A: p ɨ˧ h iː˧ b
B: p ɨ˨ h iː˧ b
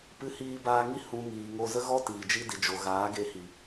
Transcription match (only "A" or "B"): A